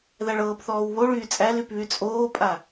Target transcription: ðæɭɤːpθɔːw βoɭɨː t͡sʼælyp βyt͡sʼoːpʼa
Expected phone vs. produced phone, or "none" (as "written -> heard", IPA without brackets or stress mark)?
ɨː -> yː